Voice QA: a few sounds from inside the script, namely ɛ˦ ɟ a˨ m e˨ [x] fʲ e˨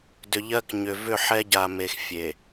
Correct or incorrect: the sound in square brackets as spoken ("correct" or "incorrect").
correct